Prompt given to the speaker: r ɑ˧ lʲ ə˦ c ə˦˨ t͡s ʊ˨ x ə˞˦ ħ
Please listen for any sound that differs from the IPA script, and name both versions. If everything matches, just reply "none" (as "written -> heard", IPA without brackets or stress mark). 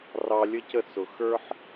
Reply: none